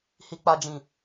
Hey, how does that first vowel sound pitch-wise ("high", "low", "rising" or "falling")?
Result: high